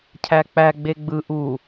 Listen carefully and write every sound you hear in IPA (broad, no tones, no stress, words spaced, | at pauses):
cʰæk͡pæ ɡ͡beɡ͡bɯ ʔu